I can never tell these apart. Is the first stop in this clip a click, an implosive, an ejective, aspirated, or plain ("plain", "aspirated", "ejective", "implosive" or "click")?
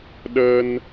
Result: implosive